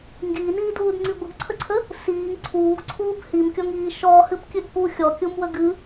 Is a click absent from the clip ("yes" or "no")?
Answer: no